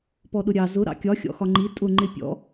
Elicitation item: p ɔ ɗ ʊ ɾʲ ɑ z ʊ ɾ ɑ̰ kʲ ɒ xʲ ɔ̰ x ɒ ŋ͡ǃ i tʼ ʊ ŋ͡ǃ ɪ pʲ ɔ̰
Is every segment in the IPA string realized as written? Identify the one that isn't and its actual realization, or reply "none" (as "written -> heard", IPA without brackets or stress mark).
none